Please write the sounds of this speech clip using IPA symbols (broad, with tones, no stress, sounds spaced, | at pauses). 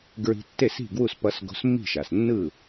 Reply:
ɡ ɹ i̤˧ tː e˥˩ s i̤˥˩ ɡ w u˥˩ s p ʌ˧ s ɡ o̤˧ s mː i̤˥˩ ʃ a˩ s nː ɯ˥˩